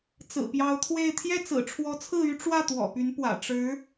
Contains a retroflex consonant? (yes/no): yes